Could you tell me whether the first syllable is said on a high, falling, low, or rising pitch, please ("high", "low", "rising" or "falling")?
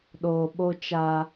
low